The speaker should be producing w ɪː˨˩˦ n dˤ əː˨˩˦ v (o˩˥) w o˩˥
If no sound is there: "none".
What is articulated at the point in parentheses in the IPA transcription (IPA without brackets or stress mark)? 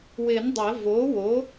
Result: oː˩˥